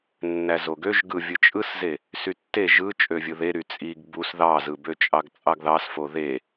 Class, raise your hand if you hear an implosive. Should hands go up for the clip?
no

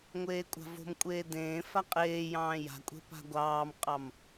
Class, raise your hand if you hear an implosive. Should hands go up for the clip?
no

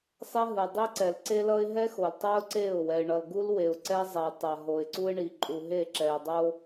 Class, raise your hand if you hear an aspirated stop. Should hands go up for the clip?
no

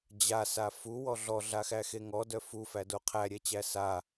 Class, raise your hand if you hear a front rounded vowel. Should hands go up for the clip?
yes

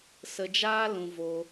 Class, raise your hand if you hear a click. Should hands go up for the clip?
no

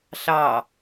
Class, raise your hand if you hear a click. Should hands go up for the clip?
no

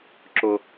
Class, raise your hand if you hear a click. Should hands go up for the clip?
yes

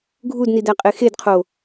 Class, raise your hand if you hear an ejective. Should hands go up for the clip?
yes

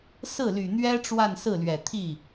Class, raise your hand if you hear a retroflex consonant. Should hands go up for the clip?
yes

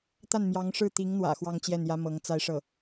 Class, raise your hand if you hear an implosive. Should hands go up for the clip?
no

